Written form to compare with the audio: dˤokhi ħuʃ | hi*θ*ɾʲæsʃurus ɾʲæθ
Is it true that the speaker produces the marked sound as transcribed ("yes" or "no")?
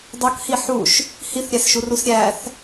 yes